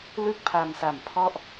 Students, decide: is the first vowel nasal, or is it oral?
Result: oral